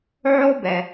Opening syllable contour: high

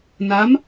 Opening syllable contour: rising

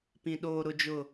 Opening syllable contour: low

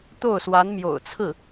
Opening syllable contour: falling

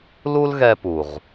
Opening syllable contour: high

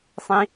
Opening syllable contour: high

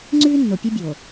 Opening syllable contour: high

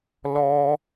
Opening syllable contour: high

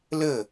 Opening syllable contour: falling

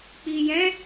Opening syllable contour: low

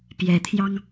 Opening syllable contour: rising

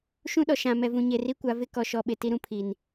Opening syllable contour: high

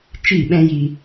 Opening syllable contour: falling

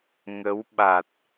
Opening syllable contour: rising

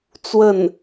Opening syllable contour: falling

